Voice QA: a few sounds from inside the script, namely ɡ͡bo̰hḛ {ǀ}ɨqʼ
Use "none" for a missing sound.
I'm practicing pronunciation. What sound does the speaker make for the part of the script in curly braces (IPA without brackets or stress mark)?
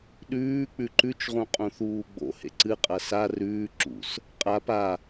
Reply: ǀ